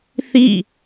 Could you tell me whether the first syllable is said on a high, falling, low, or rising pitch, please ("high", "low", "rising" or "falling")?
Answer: falling